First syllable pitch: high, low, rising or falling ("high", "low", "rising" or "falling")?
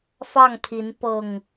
falling